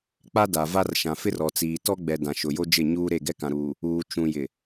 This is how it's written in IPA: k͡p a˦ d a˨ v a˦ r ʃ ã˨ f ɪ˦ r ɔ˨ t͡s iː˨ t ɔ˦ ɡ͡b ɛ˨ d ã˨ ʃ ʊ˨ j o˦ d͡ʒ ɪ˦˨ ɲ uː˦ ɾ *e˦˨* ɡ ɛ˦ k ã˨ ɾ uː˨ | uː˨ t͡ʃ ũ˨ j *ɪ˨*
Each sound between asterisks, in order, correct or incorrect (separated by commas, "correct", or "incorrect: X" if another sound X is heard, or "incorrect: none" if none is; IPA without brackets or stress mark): correct, correct